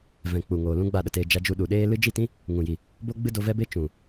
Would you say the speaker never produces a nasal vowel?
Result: no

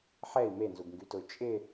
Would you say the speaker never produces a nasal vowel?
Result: yes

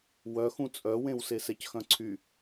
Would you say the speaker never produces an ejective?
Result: no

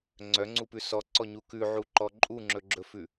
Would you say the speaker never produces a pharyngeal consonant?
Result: no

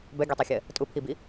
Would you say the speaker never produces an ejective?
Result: no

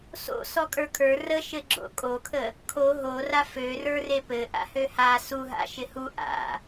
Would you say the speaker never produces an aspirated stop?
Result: no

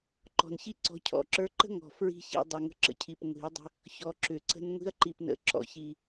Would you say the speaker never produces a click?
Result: no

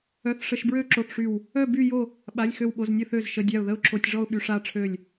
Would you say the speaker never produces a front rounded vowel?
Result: no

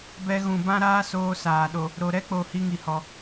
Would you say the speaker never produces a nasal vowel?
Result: no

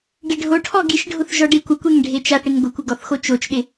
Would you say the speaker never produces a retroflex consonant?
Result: no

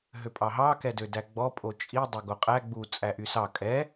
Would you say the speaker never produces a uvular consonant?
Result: no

